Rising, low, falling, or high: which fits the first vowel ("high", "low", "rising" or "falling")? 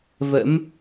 rising